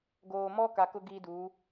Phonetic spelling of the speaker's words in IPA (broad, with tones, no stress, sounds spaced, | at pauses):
ɡ oː˨ m ɔ˦ k a˨ k ʊ˦ ɡ iː˦ d uː˨˦